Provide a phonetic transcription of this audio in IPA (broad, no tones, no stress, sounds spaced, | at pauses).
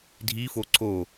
dʱ i f o ǀ o